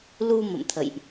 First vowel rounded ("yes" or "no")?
yes